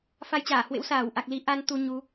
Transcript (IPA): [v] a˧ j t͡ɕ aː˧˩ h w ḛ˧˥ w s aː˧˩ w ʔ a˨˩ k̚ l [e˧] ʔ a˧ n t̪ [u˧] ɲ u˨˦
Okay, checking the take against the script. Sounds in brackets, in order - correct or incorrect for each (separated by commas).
incorrect, incorrect, correct